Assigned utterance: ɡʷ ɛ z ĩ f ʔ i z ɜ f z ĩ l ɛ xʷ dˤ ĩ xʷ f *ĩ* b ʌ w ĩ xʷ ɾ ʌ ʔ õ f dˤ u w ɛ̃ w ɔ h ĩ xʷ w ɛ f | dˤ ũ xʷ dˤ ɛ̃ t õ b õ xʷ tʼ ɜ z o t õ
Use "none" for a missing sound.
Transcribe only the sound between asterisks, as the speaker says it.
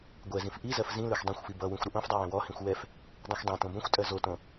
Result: i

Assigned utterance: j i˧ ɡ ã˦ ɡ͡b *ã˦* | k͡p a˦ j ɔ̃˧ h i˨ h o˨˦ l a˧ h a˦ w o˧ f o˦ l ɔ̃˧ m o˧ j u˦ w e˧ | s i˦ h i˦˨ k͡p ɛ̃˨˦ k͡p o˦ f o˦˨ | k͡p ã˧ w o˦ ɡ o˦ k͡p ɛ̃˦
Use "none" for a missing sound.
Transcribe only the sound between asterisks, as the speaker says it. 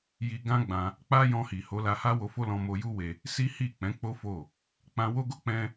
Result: ã˧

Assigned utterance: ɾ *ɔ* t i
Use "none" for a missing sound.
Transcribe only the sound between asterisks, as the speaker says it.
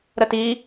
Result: ə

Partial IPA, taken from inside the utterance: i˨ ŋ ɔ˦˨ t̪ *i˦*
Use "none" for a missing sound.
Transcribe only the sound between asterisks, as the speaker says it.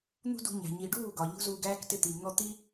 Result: i˦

